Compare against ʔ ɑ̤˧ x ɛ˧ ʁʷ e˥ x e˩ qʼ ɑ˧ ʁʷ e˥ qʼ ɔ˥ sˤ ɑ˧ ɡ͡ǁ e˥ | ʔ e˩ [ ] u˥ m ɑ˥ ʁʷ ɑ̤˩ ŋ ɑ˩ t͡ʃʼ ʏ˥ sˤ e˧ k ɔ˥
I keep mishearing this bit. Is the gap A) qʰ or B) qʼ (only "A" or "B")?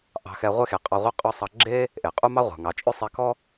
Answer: B